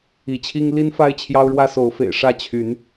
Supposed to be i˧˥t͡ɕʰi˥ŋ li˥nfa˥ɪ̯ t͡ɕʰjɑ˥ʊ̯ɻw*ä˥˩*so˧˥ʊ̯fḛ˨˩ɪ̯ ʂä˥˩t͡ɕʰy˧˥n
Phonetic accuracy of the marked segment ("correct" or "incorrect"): incorrect